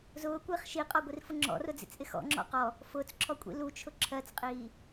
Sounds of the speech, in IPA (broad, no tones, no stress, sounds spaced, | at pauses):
z ʊː kʷ ɪː χ ʃ i qʼ ɔ ɡʷ i r f ʊ ŋ͡ǁ ɔ̰ r ʊ d͡z ḭ t͡s ʔ ɪ x ɔ̰ ŋ͡ǁ ɔ̰ q ɔ | f ʊː t͡s ǁʰ ɔ kʷʼ ḭ l u t͡ʃʰ ʊ ǁʰ ɜ t͡s qʼ iː